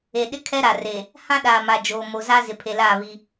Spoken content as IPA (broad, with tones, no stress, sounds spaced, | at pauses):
e˨ ɗ ɪ˦ kʰ ɛ˦ ɾ a˨ r e˨ | h ã˦ ɗ aː˨ m a˨ d͡ʒ oː˨ m o˨ z a˦ z ɪ˨ pʰ e˨ l aː˦˨ β i˦